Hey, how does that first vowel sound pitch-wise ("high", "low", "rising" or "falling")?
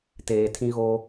low